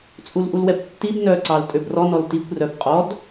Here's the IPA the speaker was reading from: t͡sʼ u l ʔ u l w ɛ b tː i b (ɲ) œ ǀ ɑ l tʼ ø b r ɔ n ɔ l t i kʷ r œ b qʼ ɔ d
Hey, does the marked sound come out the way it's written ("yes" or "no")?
no